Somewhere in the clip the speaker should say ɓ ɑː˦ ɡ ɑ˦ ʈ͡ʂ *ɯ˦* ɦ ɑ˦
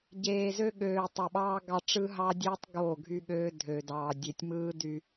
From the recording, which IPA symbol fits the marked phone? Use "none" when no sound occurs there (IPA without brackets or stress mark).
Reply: ɯ˦